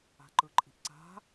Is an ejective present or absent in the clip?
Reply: present